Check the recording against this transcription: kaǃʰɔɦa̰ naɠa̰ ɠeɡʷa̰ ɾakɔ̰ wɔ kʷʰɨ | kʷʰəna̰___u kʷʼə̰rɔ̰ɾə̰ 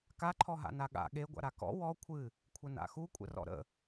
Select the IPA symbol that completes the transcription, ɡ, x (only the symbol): x